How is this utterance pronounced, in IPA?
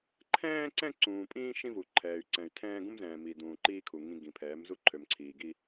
ǃʰ ɛ̃ː˦ ǀ ɛ̃˦ ǀ ũː˨ pʼ ĩː˦ ʃ ĩ˦ v u˨ ǃʰ ɛː˨ y̯ ǀ ɛ̃˨ y̯ tʰ ɛ̃ː˦ ɡ ũ˦ m z ɛ̃ː˨ m iː˨ d ũː˨ ǃ iː˦ kʰ u˨ ŋ ĩ˨ ɡ ĩ˨ pʰ ɛː˨˦ m z u˦ ǃʰ ø˨ m ǀʰ iː˨ ɡ i˦

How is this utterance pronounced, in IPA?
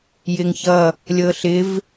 j ɪ ŋ ç ʌ | lʲ ɤ ɬ ɪ v

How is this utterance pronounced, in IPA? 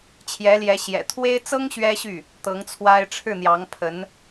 t͡ɕʰ j ɛ˧˥ l j ɛ˧˥ ɕ j ɛ̰˨˩ t̪ʰ w e˥ ɪ̯ t͡s ɤ˥ ŋ ɕ ɥ ɛ˥ ɕ y˥˩ | t̪ ɤ˧˥ ŋ t͡sʰ w a˥ ɪ̯ ʈ͡ʂʰ ɻ̩˥˩ n̪ j ɑ˧˥ ŋ pʰ ə˧˥ n

